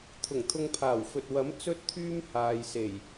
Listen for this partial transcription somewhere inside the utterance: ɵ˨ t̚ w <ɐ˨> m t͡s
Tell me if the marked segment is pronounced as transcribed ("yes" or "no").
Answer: no